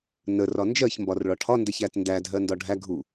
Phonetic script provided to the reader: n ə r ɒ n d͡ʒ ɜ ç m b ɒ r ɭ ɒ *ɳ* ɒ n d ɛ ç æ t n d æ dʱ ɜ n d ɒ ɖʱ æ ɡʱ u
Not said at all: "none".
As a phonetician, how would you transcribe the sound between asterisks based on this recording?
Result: ʈʰ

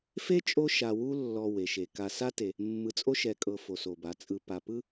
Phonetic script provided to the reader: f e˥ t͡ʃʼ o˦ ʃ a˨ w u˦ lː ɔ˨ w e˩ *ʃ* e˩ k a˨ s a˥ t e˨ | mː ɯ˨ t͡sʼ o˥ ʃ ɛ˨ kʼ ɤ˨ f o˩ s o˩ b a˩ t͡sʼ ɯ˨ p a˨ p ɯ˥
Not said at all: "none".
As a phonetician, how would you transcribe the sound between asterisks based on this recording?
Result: ʃ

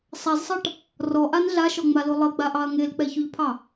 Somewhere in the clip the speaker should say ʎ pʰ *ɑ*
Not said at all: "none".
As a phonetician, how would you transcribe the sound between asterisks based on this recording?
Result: ɑ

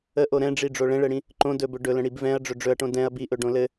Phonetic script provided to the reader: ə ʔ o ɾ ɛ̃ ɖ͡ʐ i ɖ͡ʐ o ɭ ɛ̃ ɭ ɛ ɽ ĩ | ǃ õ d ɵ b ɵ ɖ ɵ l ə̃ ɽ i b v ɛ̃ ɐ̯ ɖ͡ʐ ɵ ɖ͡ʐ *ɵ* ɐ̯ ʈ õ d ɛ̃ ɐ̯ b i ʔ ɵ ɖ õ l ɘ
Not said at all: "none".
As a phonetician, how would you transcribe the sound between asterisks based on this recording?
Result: ɵ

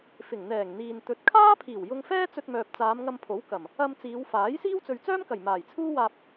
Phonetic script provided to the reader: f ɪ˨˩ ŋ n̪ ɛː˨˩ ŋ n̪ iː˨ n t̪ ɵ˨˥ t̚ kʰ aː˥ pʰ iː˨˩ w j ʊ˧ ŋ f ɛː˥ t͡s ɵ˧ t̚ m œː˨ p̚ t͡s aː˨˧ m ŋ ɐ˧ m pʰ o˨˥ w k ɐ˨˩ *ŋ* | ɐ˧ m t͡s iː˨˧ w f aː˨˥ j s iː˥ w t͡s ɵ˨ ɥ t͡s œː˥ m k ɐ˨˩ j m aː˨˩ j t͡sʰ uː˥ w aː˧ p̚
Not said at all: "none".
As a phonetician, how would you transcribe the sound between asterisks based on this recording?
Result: m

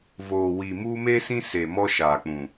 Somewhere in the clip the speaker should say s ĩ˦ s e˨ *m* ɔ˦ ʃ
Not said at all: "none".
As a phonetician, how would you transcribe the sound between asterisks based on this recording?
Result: m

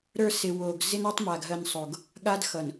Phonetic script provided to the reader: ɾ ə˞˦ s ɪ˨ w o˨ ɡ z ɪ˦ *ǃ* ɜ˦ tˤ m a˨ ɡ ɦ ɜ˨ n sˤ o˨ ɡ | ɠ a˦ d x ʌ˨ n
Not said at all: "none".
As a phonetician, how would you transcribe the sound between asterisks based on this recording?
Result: n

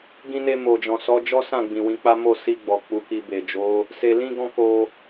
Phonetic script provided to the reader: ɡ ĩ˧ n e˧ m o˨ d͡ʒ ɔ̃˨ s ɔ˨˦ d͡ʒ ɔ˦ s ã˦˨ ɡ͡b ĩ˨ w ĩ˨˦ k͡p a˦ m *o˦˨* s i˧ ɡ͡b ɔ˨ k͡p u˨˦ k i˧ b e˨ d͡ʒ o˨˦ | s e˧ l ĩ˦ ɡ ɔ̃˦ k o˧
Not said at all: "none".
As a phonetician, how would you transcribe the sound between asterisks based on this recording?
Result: o˦˨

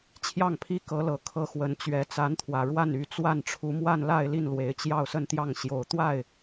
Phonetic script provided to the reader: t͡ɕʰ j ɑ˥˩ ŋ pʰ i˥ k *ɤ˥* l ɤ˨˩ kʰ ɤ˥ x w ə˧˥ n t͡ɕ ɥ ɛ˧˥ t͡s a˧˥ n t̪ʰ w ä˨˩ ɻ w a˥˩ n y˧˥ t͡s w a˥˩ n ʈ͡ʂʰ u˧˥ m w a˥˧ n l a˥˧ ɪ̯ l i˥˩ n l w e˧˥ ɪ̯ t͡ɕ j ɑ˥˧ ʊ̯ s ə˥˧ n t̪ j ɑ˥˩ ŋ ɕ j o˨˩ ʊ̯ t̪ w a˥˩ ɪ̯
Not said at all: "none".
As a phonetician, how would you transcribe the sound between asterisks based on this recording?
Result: ɤ˧˥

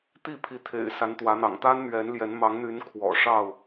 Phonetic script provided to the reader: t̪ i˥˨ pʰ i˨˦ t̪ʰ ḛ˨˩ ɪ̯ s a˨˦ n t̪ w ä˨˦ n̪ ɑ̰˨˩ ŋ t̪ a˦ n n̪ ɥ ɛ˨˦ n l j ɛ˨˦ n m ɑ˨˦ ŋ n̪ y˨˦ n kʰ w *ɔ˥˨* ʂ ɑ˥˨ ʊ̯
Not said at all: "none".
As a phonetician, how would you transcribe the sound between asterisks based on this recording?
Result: ɔ̰˨˩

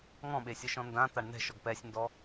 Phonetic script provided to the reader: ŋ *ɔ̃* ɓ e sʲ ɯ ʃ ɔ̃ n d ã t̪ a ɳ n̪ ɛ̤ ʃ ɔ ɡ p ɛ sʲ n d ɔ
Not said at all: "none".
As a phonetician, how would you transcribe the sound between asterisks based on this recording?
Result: ɔ̃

